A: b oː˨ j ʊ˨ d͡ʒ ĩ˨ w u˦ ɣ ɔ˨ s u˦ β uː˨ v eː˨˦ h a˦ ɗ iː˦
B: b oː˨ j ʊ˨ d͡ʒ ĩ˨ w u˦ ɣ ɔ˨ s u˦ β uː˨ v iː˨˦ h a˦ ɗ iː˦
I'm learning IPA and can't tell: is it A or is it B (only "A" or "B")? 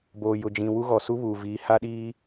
B